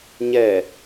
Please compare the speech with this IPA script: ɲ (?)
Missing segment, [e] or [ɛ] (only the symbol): ɛ